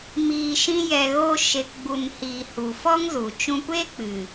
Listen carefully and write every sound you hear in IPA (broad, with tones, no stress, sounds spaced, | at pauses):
m iː˨ ʃ ĩ˧ j ɛ˨ ɣ o˧ ʃ e˨ k ɡ͡b u˨ n h iː˨ h u˨ f ɔ˦ ŋ z u˨ t͡ʃ ũ˧ kʷ e˦ k͡p ɨ˨